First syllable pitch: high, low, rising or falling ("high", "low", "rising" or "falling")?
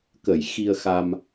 low